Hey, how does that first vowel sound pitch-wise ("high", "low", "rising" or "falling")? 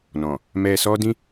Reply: low